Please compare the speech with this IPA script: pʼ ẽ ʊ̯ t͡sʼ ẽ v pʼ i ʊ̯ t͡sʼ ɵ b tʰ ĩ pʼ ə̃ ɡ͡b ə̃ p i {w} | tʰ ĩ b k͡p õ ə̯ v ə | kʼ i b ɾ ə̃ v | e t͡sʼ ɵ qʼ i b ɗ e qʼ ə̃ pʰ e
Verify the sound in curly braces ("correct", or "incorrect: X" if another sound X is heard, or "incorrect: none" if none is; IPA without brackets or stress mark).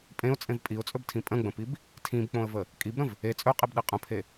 incorrect: b